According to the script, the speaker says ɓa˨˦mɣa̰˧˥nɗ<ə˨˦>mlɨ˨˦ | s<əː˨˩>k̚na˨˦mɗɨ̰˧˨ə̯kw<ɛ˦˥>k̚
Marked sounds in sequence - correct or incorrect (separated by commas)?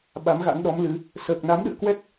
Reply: incorrect, correct, correct